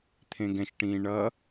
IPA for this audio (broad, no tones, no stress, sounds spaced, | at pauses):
t̪ʰ ẽ ɡ ɛ̃ ʃ ʈ ĩː ɳ ʌ